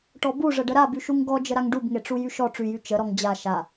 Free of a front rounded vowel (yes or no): no